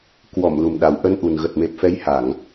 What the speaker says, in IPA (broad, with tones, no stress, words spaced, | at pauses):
kwɔ˧˩m lu˨˩mɗa˨˩wʔə˧nʔu˨˩n ɣə˨˩t̚me˨˩p̚fɛ˨˦j ha˧˩˨ŋ